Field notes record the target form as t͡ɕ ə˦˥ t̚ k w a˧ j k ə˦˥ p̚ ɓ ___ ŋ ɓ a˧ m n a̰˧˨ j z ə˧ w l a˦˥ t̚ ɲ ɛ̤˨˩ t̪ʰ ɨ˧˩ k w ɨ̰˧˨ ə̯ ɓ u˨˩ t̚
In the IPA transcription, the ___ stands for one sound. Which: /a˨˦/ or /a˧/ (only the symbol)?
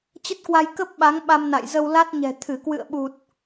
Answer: a˨˦